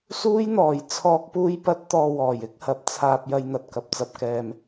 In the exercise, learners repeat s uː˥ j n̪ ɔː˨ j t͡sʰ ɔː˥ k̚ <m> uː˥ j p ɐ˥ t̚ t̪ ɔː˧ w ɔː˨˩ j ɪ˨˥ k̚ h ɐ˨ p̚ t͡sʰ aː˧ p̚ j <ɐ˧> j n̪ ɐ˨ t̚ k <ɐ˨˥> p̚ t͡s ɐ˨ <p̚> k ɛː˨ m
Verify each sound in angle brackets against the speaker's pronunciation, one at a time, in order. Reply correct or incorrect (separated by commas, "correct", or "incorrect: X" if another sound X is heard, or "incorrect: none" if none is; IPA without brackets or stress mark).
incorrect: p, correct, incorrect: ɐ˨, correct